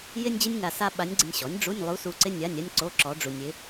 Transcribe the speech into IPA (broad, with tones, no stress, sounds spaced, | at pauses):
j ɪ˥ nʲ d͡ʑ ɪ˥ nʲ ŋ a˧ s a˥ ɓ a˧˥ nʲ ɡ͡ǀ ɪ˧ nʲ ɕ ɔ˩˥ nʲ ɖ͡ʐ u˧˥˧ nʲ lˠ u˧˥ s u˧ ǀ ɪ˥ nʲ a˧˥˧ nʲ a˥ nʲ ǀ o˧˥˧ ǁ ɔ˧˥ ɖ͡ʐ u˧ nʲ ɪ˧˥